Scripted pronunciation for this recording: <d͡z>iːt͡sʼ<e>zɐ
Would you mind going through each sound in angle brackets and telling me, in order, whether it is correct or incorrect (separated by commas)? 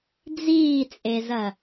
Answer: correct, correct